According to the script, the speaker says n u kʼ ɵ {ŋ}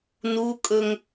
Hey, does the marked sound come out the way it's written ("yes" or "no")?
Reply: yes